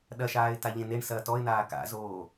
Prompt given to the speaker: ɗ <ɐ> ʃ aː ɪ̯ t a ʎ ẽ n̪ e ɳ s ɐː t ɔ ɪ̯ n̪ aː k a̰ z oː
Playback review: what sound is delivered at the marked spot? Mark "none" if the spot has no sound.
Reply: ɐ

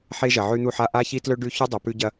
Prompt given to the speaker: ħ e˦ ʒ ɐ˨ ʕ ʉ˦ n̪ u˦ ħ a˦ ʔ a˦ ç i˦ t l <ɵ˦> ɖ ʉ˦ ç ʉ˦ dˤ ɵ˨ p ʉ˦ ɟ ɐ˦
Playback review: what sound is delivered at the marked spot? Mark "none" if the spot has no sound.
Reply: ɵ˦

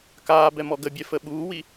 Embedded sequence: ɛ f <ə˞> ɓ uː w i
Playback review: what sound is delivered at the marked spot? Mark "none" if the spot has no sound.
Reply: ə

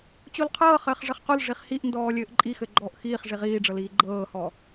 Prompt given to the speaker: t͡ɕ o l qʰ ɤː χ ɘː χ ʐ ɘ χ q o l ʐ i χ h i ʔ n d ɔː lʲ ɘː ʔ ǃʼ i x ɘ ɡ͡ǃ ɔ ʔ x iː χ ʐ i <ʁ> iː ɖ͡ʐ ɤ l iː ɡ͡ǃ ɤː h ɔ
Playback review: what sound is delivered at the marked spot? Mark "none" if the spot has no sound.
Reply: ʁ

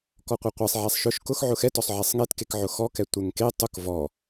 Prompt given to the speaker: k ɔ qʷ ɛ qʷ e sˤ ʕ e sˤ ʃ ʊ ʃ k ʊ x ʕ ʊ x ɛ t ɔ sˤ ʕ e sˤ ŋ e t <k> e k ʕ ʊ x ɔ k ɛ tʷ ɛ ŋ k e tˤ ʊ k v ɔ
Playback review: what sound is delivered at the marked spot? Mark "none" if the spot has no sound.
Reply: k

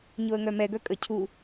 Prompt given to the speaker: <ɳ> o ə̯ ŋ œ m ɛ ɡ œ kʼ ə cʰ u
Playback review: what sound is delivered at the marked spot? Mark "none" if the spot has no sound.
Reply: ɲ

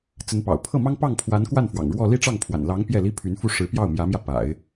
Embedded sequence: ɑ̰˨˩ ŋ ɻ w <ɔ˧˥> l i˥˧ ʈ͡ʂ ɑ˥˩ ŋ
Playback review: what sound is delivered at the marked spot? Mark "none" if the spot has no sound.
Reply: ɔ˥˧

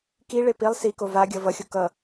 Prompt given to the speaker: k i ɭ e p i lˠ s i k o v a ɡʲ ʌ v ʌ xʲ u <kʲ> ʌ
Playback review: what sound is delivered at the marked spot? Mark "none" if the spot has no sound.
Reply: k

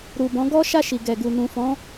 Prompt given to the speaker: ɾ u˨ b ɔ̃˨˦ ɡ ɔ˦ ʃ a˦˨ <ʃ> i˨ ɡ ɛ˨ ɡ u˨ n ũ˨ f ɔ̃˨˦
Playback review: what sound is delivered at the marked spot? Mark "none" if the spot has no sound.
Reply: ʃ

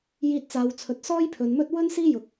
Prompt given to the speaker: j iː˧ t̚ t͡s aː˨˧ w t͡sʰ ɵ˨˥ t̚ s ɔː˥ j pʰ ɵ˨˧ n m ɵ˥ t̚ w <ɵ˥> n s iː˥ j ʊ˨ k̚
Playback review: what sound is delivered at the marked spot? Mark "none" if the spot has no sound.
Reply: ɵ˥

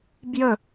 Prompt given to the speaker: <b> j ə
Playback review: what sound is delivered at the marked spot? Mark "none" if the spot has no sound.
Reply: b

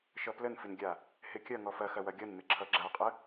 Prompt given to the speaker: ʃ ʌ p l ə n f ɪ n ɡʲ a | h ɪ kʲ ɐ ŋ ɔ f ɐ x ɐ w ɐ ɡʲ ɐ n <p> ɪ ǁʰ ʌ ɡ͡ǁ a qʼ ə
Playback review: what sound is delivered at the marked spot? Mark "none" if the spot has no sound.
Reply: m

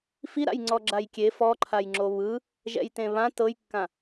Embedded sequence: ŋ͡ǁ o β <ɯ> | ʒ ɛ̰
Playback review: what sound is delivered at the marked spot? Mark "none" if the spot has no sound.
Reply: ɯ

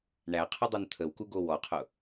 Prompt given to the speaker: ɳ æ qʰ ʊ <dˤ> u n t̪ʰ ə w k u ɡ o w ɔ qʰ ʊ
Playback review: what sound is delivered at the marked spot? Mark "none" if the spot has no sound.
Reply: dˤ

